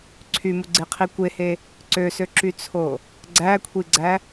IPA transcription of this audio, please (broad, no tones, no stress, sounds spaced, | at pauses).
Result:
ǀʰ y m u ɡ͡ǀ e qʰ i kʷ e h e | ǀ ø s ø ǁ y t͡sʰ o | ɡ͡ǀ æ kʷʰ i ɡ͡ǀ æ